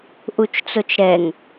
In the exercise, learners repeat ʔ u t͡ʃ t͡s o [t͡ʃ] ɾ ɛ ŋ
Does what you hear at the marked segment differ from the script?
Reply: no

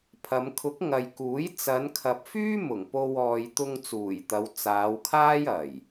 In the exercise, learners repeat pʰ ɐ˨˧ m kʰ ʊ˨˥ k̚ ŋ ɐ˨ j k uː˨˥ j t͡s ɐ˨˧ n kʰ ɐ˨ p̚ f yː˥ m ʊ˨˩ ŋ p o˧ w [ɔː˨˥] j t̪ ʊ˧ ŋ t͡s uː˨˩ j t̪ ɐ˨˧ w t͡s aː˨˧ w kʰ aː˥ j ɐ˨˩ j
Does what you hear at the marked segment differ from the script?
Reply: yes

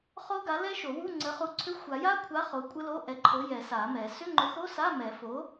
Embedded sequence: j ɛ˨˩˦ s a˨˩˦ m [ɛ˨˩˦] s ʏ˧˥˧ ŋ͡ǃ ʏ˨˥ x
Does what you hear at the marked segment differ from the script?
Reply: no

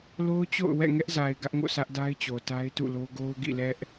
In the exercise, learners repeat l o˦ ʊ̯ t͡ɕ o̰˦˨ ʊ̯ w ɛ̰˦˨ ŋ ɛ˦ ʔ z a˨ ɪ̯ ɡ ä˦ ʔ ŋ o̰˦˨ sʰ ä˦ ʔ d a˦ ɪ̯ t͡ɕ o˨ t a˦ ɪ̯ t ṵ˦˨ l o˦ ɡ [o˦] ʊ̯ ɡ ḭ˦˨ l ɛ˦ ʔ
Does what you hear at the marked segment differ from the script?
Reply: no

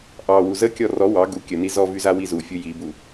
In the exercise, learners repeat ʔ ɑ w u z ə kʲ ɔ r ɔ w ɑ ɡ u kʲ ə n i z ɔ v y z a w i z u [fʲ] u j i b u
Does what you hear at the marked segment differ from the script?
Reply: no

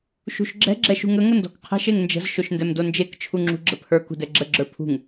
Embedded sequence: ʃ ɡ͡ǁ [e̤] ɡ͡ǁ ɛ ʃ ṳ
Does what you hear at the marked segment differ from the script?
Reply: yes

